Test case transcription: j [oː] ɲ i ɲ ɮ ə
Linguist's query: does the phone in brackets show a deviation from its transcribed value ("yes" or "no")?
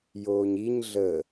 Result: no